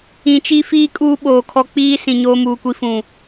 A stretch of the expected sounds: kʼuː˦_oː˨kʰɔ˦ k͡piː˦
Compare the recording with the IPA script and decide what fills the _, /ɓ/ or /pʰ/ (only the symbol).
ɓ